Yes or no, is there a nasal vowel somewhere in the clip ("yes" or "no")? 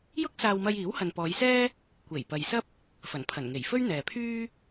no